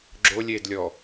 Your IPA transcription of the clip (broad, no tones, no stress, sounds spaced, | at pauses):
ɡ͡ǁ o lʲ e d lʲ ɔ